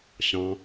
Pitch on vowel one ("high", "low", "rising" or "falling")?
low